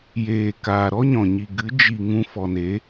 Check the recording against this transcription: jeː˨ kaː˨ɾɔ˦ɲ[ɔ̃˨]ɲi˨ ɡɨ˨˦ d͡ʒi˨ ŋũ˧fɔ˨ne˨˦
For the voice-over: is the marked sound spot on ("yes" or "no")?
yes